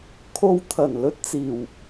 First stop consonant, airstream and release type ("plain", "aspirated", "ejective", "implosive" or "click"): aspirated